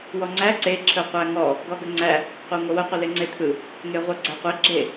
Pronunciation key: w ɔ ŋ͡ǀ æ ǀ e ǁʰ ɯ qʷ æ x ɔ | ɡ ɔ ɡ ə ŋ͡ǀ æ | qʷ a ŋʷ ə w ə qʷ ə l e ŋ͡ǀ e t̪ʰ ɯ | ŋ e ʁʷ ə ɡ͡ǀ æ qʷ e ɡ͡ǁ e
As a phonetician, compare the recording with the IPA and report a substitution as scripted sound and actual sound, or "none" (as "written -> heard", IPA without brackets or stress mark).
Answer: x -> ŋ